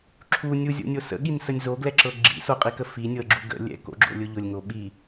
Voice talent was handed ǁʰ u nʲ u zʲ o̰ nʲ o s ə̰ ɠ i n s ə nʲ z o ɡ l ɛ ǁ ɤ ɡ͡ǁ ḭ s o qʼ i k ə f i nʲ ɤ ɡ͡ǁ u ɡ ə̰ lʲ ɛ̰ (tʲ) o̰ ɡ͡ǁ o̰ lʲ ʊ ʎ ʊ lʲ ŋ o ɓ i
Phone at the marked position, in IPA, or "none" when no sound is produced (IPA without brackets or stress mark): k